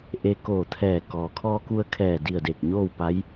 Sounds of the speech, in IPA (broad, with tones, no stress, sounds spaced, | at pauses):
ʔ e˧ k oː˧˩ t̪ʰ ɛː˧˩ k ɔː˩ kʰ ɔː˧ k u˧ ə̯ kʰ ɛː˧˩ d i˧˩ ə̯ d e˧˩ k̚ ɲ oː˥˨ w p a˧˥ j